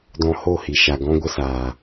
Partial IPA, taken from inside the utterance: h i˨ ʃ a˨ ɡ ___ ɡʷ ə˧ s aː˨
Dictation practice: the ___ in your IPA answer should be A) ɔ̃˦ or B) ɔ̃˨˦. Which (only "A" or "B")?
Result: A